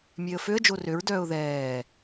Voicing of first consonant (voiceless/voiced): voiced